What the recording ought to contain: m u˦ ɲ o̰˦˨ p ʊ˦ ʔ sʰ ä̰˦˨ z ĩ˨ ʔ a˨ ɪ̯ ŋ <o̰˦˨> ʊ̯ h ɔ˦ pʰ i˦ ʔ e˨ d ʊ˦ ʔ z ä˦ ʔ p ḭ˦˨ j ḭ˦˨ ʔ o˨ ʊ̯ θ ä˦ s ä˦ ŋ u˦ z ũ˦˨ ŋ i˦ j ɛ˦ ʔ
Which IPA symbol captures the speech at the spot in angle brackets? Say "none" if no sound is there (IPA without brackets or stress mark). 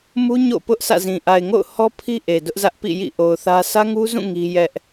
o̰˦˨